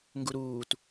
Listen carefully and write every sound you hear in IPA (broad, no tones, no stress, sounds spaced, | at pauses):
ŋ ɡ u ɾ uː t